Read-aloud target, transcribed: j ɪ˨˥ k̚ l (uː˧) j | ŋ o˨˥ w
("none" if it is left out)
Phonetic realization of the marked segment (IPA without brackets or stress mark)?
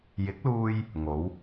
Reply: uː˧